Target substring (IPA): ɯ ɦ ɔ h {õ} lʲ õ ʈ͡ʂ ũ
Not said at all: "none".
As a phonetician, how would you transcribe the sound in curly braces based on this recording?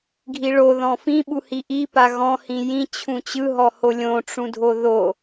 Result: o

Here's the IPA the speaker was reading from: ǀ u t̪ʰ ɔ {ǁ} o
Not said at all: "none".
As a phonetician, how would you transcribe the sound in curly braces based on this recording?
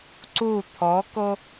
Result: k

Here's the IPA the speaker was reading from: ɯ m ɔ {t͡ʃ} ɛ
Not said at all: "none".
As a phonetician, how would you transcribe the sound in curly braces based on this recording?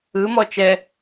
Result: t͡ʃ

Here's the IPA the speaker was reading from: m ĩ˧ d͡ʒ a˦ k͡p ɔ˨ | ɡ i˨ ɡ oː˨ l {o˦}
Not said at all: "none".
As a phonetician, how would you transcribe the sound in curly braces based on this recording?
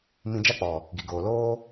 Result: oː˦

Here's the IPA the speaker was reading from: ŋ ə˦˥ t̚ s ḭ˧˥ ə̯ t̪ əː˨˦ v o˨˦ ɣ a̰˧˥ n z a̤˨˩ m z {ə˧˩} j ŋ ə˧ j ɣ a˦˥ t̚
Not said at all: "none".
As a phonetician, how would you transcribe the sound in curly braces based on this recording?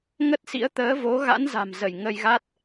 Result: ə˧˩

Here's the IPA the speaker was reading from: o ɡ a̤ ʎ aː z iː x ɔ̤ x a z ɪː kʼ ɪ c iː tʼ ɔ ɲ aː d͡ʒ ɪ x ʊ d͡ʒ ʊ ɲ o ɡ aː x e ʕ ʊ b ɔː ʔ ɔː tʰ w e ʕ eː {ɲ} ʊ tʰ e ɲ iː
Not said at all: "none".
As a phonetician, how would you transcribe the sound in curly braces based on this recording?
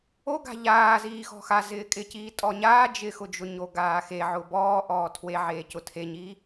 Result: c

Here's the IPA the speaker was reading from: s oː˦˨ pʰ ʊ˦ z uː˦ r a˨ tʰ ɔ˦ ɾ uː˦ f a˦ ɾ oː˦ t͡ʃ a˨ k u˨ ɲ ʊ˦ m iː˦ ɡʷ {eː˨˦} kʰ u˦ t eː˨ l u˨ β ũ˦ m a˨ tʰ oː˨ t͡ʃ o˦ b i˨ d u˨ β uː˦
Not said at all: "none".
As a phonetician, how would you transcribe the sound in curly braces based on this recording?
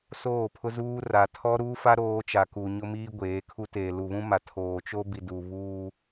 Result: eː˨˦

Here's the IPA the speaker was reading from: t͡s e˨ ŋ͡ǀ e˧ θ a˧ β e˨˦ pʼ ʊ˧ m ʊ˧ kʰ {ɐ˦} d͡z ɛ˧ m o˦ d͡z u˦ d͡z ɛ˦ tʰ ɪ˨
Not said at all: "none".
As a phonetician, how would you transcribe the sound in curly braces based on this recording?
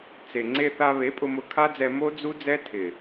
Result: a˦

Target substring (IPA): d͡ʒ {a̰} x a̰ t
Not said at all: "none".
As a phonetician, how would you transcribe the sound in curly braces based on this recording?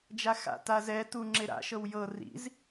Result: a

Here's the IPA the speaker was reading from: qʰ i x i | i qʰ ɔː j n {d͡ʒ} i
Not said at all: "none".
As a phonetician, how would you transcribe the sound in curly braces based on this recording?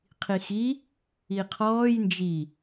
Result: d͡ʒ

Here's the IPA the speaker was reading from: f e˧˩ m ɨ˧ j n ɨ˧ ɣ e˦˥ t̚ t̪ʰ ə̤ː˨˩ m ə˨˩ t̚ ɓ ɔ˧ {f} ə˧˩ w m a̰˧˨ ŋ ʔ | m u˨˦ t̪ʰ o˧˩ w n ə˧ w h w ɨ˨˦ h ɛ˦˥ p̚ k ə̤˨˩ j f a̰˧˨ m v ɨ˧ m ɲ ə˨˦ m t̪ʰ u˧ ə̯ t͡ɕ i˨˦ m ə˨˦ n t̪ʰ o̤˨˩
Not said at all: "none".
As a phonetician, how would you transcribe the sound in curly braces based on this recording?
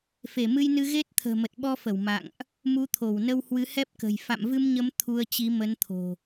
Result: f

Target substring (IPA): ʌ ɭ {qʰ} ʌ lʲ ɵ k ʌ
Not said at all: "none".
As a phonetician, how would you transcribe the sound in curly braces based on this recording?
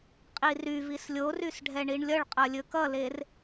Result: qʼ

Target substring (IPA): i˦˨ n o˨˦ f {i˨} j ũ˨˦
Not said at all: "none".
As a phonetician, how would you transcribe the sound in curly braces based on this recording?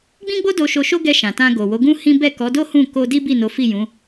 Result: i˦˨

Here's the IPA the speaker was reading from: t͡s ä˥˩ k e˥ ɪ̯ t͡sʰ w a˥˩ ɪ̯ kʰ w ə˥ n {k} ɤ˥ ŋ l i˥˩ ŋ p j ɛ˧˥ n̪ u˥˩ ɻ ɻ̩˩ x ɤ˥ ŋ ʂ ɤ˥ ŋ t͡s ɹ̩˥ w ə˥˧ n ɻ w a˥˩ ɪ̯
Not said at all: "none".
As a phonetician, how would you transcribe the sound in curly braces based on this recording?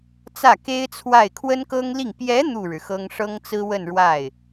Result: k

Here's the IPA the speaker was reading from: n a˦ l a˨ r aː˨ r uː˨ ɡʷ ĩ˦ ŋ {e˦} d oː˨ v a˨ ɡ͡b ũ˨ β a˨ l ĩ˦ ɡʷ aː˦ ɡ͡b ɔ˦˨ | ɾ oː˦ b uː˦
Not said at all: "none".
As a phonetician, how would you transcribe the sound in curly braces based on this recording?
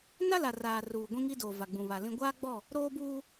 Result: i˦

